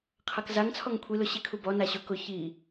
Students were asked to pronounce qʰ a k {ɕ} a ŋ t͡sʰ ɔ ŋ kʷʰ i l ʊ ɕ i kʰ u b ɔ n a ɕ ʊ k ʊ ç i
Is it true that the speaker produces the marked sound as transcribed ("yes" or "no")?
no